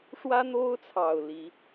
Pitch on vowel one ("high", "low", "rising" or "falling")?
high